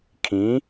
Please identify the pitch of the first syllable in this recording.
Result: rising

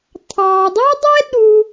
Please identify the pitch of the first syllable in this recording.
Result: low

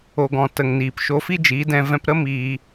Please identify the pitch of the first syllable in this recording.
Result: low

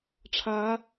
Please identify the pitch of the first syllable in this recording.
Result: rising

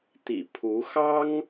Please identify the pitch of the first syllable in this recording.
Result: low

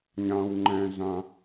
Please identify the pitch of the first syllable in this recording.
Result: low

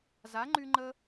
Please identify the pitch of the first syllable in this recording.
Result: rising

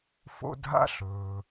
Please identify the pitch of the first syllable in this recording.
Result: high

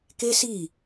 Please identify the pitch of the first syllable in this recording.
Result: high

